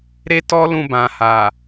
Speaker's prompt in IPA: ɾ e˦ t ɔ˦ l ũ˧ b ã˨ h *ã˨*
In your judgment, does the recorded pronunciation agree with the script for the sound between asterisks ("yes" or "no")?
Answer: no